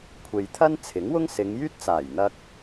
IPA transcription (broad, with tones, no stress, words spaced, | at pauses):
kʷʰe˨j t̪ʰɐ˥nt͡sʰɪ˨˥ŋwʊ˥ŋ sɪ˨˧ŋjyː˥t̚t͡saː˨˩jn̪ɐ˧k̚